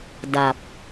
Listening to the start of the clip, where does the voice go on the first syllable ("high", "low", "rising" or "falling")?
low